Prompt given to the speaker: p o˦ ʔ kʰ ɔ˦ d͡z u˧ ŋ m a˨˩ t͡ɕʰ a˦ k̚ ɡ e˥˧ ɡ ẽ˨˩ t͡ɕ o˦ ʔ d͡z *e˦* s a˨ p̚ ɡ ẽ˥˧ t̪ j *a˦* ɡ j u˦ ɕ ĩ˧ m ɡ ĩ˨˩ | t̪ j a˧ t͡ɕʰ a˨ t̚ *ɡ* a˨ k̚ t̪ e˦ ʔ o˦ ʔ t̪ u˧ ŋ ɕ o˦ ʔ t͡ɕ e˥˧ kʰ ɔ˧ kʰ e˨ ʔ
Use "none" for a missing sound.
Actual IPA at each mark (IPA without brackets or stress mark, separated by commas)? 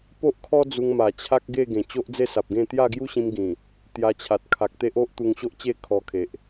e˥˧, a˥˧, kʰ